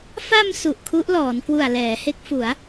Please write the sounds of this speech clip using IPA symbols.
f a˧ m s u˨˩ ʔ kʰ u˦˥ ʔ l ɔː˩˦ n k w u˨˩ a̯ l ɛː˩˦ h e˦˥ k̚ f u˩˦ a̯

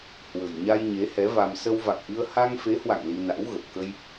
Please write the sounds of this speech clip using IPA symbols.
h w ə̤˨˩ j ɲ a˧ j ɲ e˨˦ h ɛ˨˦ v a˧ m s ə˧ w v a̰˧˨ ŋ ʔ ɨ˧ ə̯ h a˧ ŋ f e˨˦ h w a̰˧˨ ŋ l i˧ n a̰˧˥ w ɣ ə˨˩ p̚ k ə˧ j

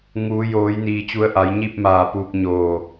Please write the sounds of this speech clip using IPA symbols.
ŋ uː˩˧ j oː˩˧ j n iː˩ t͡ɕ u˩˧ ə̯ ʔ a˩˧ j ɲ i˥˨ p̚ m aː˧˩ p uː˧ k̚ ɲ oː˧˩

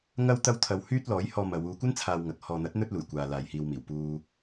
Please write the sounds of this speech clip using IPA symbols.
ŋ ɐ˥ w t̪ ɐ˥ w t̪ʰ ɐ˧ w h yː˥ t̚ l ɔː˨˥ j h ɔː˧ m ɐ˨˧ w uː˧ kʷ ɐ˥ n t͡sʰ aː˨ w ŋ ɐ˨ k̚ h ɔː˨ n̪ ɐ˨˥ t̚ n̪ ɵ˥ t̚ l uː˨˩ j kʷ aː˨ l aː˨ j h iː˧ w m iː˨˩ w p uː˨

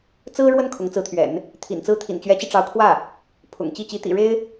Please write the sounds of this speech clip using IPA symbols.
t͡s ɹ̩˥ ɻ w ə˥˩ n kʰ ʊ˧˥ ŋ t͡s ɹ̩˧˥ t̪ʰ ɥ ɛ̰˨˩˦ n | t̪ʰ ḭ˨˩ n t͡s ɹ̩˥ t̪ʰ ḭ˨˩ n t͡ɕ ɥ ɛ˧˥ t͡ɕ i˧ ʈ͡ʂ ɑ˧˥ ʊ̯ kʰ w ä˥˩ | pʰ ʊ̰˨˩ ŋ t͡ɕ i˥˩ t͡ɕ i˧˥ t̪ ḭ˨˩ ɻ e˥ ɪ̯

